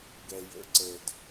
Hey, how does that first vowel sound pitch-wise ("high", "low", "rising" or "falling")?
low